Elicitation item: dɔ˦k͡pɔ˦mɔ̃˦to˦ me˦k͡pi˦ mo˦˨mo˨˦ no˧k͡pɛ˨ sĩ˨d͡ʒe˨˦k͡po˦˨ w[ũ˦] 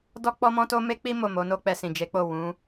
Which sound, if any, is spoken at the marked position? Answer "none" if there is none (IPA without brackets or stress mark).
ũ˨˦